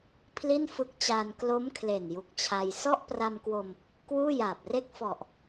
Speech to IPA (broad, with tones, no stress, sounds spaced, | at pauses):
pʰ l i˥˩ n f ɯ˦˥ k̚ t͡ɕ aː˧ n k l o˦˥ m kʰ l e˨˩ n j u˨˩ k̚ t͡ɕʰ a˧ j s ɔ˥˩ ʔ p r a˧ m k w o˧ m | k w uː˥˩ j aː˨˩ p̚ r e˥˩ k̚ f ɔ˨˩ ʔ